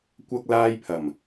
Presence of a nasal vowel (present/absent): absent